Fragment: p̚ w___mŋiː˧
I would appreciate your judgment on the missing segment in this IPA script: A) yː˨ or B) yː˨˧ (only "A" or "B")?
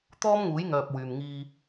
A